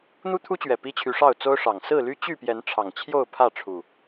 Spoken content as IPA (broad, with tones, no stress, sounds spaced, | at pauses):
n̪ u˦ t̪ʰ u˦ t͡ɕ ɥ ɛ˨˩ p i˦ t͡ɕʰ y˨˦ ʂ ɑ˥˨ ʊ̯ t͡s o˦ ʊ̯ ʂ ɑ˨˩ ŋ s ɹ̩˥˨ l y˦ t͡ɕ y˥˨ p j ɛ˨˦ n ʈ͡ʂʰ ɑ˨˩ ŋ t͡ɕʰ j o˥˨ ʊ̯ pʰ ä˥˨ ʈ͡ʂʰ u˨˩